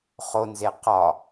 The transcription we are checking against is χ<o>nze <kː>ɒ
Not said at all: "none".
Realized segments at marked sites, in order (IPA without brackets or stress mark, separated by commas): o, q